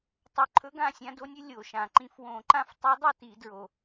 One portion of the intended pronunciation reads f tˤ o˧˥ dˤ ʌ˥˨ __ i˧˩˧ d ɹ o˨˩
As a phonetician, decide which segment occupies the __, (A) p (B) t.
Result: B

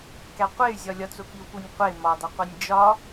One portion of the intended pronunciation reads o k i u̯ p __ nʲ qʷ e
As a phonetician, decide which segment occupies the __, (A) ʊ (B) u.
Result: B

